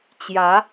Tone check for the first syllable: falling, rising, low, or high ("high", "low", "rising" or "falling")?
rising